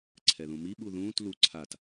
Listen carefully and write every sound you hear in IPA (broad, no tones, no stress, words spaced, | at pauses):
ǀʰɛðũmi ɓuðũːt lu ǀʰat